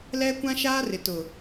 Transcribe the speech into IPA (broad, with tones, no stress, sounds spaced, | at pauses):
l ɛ˦ kʷ ã˦ ʃ aː˦ r ɪ˨ t ʊ˨